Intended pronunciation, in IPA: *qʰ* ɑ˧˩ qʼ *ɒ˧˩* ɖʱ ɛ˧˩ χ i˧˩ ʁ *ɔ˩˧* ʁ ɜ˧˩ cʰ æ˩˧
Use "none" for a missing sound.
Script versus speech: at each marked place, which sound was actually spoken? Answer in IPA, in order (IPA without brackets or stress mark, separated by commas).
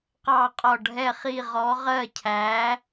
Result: q, ɒ˧˩, ɔ˩˧